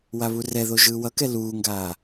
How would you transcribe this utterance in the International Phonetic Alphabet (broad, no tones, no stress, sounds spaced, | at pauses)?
w a β u r ɛ ð o ʒ ɯː w ʌ k ɛ l uː ŋ ɡ aː